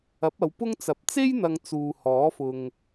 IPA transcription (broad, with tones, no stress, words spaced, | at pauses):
ɐ˨˥p̚ɐ˨˧wpʊ˥ŋt͡sɐ˨p̚ t͡se˥jn̪ɐ˨ŋ t͡suː˨ hɔː˨˥fʊ˨ŋ